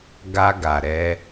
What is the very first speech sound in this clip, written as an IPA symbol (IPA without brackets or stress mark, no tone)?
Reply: ɡ